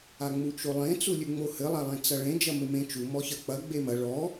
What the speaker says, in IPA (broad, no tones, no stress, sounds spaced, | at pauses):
a ŋ͡m u t͡ʃ o lˠ ẽ t͡s u lʲ ʉ ŋ͡m o h ɘ lˠ a lˠ ẽ t͡s ɐ ɭ ẽ d͡ʒ ɐ m ɘ m ẽ t͡ʃ u m ɔ ç ɐ k͡p ɐ ɡ͡b e m ɐ ɭ ɔ